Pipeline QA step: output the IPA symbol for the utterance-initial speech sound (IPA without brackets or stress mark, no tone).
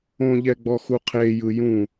õ